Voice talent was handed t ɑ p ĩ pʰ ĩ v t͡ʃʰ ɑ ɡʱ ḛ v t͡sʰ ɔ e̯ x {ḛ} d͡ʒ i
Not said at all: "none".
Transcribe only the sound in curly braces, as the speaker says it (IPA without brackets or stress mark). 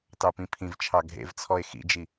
ḭ